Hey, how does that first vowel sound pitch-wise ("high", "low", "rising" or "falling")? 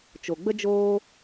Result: low